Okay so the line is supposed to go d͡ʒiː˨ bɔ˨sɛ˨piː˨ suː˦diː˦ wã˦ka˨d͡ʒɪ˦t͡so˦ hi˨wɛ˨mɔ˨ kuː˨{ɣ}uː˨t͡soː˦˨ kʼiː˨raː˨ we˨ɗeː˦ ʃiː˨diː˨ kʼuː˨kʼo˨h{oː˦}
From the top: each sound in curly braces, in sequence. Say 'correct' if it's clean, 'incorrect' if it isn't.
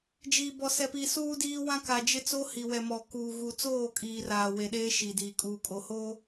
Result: correct, correct

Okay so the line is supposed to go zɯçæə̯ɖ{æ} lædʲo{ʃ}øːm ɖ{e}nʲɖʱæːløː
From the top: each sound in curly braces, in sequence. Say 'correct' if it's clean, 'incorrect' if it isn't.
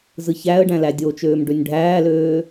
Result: incorrect, incorrect, incorrect

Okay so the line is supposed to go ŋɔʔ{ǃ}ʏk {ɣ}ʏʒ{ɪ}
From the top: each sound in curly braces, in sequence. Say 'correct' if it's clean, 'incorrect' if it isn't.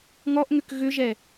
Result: incorrect, correct, incorrect

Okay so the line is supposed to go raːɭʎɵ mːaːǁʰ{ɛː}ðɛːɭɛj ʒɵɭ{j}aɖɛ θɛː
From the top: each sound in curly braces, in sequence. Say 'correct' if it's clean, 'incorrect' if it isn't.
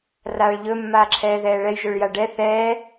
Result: correct, correct

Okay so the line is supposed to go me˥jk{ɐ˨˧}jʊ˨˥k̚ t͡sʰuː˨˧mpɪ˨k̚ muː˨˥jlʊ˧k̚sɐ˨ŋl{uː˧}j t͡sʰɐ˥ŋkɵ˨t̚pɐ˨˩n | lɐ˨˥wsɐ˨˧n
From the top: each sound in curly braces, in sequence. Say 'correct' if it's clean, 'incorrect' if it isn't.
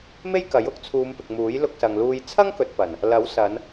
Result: incorrect, correct

